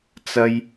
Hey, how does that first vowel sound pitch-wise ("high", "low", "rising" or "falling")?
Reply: high